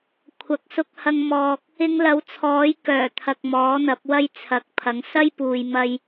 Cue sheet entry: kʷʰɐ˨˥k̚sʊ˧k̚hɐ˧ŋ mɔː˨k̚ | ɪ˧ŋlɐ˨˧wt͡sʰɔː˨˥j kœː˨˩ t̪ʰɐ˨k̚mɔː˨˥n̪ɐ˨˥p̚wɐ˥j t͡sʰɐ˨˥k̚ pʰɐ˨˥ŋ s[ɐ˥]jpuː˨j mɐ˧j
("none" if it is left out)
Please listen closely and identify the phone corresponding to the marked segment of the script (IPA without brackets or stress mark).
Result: ɐ˥